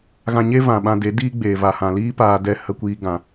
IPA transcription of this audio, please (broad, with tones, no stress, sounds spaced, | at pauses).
ɣ ã˧ ɲ e˦ v ã˨ ɓ ã˧ d e˨˦ d iː˦ ɡ͡b eː˨ v a˨ h ã˨ l iː˦ p aː˧ d ɛ˧ h ə˧ kʷ iː˧ ɡ ã˧